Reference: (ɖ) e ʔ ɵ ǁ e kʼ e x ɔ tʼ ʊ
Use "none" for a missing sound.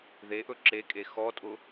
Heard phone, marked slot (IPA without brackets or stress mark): ð